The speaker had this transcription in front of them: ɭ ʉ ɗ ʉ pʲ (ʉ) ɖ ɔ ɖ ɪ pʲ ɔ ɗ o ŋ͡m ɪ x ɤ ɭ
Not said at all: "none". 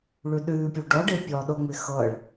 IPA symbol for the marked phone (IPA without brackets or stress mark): u